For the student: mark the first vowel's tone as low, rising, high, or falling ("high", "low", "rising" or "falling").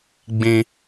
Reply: high